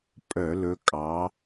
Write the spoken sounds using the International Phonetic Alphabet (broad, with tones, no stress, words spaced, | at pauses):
pʼœ˧˩˧lɵ˨˦kʼɑ˨˦